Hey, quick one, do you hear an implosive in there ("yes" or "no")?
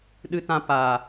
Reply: yes